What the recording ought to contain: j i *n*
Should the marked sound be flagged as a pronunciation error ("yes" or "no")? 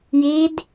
yes